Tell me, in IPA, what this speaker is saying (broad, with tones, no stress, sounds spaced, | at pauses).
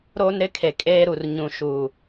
ɾ oː˦ n ɾ ɪ˦ kʰ e˨ kʼ eː˦ ɾ u˨ r ɲ ũ˨ ʃ uː˨